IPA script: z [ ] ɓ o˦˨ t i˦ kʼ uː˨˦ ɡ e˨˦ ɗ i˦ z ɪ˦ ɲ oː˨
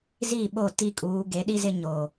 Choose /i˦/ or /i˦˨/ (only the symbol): i˦˨